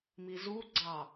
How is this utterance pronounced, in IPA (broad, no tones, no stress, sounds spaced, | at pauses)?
m i z u ɡ͡ǀ ɑ